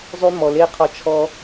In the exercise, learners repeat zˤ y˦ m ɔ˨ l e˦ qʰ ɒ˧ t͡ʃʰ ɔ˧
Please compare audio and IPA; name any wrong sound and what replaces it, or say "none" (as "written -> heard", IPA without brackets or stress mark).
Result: none